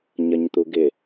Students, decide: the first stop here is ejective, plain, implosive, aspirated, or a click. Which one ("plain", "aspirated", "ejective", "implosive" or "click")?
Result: plain